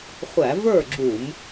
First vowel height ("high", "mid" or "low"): low